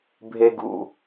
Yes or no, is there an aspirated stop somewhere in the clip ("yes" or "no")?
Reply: no